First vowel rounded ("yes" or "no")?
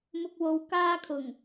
yes